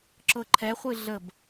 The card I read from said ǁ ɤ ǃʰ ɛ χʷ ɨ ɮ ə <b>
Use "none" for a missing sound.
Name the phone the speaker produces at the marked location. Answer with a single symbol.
b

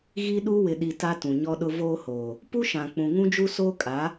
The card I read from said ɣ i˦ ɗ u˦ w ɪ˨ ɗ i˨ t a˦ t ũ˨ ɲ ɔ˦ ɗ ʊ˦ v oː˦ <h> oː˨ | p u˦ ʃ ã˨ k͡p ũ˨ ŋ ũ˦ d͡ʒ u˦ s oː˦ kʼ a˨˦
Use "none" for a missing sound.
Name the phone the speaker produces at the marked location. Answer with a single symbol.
h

